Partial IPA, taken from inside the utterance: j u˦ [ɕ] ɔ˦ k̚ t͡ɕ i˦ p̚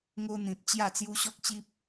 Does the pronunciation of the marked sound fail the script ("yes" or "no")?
no